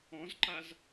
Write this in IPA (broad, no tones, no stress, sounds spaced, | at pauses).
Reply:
ɔ̃ z ǃ a z